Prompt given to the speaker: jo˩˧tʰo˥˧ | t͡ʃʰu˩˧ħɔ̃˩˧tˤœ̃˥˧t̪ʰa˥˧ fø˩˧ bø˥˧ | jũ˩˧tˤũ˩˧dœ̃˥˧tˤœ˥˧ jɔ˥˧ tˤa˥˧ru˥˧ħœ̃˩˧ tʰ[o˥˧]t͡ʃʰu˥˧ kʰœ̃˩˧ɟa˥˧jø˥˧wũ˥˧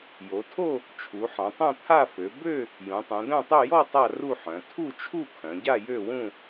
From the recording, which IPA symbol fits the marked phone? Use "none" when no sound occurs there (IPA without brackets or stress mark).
u˥˧